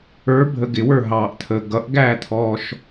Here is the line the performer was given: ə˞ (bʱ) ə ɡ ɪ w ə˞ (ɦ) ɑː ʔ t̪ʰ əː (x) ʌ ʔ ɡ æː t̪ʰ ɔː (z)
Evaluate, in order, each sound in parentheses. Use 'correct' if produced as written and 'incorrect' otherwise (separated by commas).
correct, correct, incorrect, incorrect